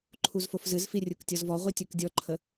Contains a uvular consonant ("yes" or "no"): yes